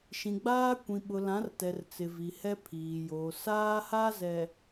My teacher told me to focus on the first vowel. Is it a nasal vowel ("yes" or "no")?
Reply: yes